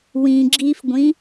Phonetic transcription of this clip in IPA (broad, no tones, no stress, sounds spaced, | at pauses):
w ĩ ɡ͡ǁ i f ɡʷ ĩ